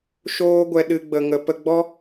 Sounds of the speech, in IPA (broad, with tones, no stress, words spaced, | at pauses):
ʃoː˦ ɡʷɛ˧ ɗɨ˦ɡ͡bə˧ ŋə˦ pə˧ɡ͡bɔ˦